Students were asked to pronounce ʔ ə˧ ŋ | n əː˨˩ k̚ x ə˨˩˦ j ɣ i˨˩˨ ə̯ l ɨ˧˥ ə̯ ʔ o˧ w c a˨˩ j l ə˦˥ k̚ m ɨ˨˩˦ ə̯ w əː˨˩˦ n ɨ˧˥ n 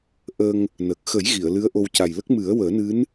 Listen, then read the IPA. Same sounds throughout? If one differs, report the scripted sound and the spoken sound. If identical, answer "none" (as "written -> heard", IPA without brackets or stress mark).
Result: none